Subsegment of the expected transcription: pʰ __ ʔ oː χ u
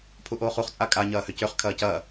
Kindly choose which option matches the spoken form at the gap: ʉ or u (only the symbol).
u